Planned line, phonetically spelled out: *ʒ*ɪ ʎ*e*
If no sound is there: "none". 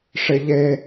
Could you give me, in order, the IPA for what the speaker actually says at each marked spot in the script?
ʂ, e

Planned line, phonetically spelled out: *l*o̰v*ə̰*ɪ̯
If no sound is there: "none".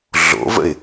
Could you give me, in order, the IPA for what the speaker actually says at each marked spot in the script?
ɮ, ə̰

